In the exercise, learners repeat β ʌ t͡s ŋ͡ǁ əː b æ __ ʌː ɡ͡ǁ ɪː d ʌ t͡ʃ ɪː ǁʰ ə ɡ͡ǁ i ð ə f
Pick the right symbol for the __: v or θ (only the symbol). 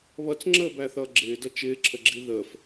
θ